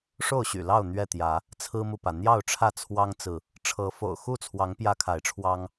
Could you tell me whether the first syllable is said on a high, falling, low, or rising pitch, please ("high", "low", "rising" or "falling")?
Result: falling